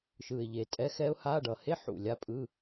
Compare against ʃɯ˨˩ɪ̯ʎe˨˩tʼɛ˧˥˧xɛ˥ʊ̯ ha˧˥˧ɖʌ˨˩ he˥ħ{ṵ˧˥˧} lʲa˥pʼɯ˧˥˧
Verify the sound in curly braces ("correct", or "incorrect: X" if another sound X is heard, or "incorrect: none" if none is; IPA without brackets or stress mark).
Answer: incorrect: ṵ˨˩